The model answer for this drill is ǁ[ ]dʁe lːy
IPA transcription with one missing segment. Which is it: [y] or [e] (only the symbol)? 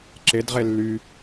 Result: e